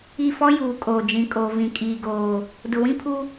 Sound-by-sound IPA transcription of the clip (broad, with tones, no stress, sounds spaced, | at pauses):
i˦˨ f ɔ˦ j uː˨ kʼ oː˨ d͡ʒ ĩ˨ kʼ oː˨ v ĩ˨ kʼ iː˨ ɡ oː˨ | d ʊ˨ w ĩ˦ pʰ u˦